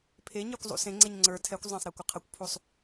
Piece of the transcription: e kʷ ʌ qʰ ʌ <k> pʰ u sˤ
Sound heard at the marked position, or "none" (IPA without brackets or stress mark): kʷ